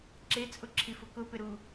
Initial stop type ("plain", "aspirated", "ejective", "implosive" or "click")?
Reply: click